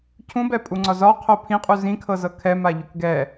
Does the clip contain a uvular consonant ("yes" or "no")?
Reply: yes